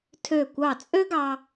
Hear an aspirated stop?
yes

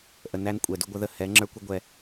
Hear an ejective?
yes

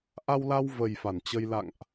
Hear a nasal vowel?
no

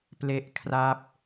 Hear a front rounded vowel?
no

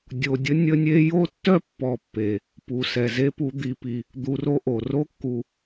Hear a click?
no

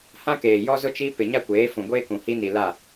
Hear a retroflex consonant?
no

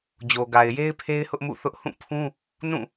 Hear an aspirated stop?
yes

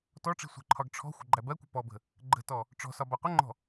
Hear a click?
yes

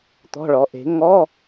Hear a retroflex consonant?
yes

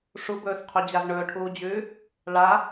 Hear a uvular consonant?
yes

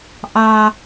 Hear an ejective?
no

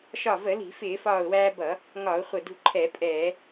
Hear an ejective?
yes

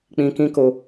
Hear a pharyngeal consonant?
no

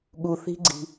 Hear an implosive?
yes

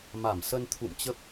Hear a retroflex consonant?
no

